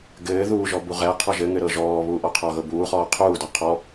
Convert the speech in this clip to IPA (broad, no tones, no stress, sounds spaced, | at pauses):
ɡ ɘː ð uː ʒ ɔ b u ʁ ɛ qʰ ɔ ʒ ɘ ŋ ɘ ɾ ɤ ʒ ɔː β uː ʔ ɔ qʰ ɒ ɣ ɤ b uː χ ɔː qʰ uː d ɒ qʰ ɔ